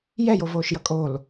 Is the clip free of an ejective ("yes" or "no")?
no